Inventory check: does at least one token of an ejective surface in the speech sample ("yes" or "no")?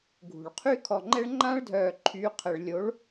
no